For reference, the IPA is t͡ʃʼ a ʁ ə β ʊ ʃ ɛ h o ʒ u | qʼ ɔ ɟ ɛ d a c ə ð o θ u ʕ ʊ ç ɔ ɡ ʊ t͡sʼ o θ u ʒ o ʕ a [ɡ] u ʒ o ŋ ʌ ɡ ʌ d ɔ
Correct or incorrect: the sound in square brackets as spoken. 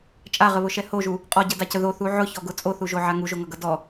incorrect: ŋ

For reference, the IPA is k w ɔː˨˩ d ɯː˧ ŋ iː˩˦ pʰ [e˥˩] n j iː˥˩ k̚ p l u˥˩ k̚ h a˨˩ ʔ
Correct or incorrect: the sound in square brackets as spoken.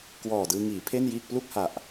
correct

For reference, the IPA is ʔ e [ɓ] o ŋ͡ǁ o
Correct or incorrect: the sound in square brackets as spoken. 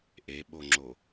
correct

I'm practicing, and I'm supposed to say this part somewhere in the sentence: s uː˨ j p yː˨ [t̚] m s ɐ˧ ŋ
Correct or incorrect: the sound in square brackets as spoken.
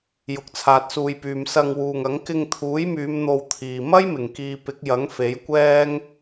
incorrect: none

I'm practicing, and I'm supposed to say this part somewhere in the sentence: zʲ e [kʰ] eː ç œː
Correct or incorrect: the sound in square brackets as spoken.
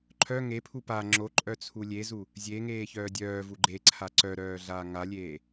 incorrect: ŋ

